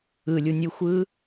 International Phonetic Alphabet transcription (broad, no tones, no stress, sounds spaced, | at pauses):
ɯ lʲ u nʲ u xʷ ɯː